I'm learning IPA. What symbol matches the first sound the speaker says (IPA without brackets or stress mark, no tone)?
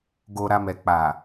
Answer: ɡ